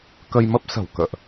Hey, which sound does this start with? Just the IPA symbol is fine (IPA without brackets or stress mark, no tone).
k